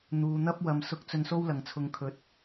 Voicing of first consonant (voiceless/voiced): voiced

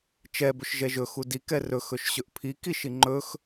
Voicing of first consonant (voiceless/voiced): voiceless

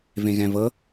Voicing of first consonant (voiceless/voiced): voiced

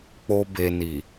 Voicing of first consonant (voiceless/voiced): voiceless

